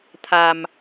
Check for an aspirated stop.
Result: present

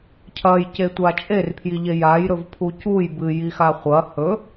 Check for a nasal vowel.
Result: absent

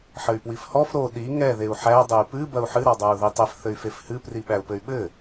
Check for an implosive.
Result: present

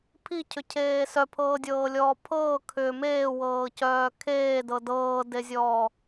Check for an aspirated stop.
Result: present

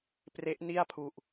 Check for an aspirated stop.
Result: present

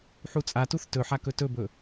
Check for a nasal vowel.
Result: absent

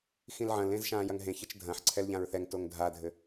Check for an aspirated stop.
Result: present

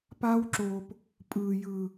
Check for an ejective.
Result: present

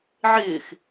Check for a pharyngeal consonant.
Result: present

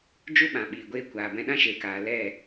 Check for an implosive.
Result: present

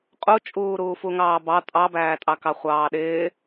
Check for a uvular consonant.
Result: present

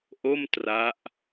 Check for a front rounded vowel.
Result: absent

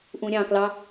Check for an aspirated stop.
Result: absent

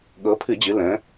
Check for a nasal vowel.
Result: present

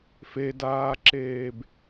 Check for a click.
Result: present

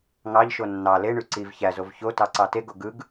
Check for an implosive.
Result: absent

